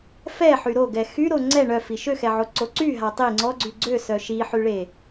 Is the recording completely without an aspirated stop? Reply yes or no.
yes